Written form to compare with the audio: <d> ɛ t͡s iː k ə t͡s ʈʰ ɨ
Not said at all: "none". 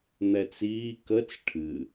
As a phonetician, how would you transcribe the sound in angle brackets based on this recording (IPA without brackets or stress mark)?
n̪